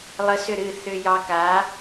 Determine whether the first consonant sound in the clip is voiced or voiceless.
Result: voiced